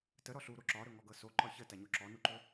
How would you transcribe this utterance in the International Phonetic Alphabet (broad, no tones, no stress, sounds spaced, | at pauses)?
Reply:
t ə ɾ ɔ ɬ u ɾ o ǁ ɒ ɾ ɵ ŋ ɔ ɡ ɤ s o ǃ ɒ ç ə t a ɲ o ǁ ɔ n u ǃ ɵ